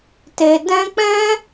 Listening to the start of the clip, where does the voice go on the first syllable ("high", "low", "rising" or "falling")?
low